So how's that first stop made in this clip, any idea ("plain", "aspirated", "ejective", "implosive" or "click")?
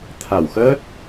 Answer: aspirated